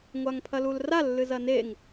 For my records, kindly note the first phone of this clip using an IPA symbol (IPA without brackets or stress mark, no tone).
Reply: ŋʷ